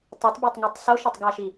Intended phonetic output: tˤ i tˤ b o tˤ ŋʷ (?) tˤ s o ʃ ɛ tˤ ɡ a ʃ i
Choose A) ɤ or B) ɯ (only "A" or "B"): A